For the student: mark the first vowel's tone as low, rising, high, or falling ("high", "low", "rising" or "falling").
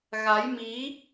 rising